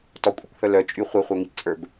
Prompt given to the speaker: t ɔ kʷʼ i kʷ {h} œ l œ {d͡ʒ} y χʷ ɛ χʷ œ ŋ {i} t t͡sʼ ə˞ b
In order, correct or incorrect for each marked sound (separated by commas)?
correct, incorrect, correct